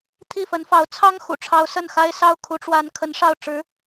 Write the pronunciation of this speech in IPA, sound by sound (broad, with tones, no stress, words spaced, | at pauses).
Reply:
t̪ʰi˥˩fə˧˥nfɑ˧˥ʊ̯ t͡sʰɑ˥ŋxṵ˨˩ʈ͡ʂʰɑ˧˥ʊ̯ sə˥˩nxa˥ɪ̯ sɑ˥˩ʊ̯kʰu˧˥ʈ͡ʂwa˧˥n kʰə˧˥nʂɑ˥˩ʊ̯ ʈ͡ʂɻ̩˧˥